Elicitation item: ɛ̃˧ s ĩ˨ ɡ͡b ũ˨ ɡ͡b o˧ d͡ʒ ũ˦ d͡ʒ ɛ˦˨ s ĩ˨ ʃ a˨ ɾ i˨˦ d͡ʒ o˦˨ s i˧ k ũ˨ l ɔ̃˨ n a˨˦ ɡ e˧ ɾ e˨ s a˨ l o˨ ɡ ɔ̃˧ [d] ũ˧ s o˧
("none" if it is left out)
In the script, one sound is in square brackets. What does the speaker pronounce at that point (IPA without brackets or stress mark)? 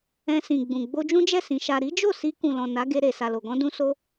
d